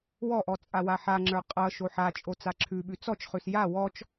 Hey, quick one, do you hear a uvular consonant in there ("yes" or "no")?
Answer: yes